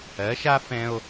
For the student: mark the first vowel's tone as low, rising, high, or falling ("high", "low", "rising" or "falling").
rising